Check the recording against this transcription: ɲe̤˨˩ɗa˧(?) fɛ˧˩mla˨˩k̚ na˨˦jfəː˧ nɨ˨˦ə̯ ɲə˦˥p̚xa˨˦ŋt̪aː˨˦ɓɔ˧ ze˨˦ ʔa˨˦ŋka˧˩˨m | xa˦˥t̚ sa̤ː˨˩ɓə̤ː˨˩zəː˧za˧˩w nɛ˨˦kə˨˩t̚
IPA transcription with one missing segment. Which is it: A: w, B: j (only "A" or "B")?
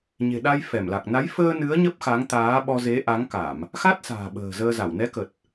B